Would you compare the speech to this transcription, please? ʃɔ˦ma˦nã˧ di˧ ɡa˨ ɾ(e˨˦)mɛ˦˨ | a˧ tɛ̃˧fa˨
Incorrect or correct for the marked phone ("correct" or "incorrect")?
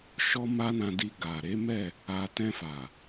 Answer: correct